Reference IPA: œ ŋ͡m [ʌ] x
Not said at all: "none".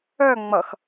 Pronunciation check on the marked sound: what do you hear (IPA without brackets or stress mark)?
ʌ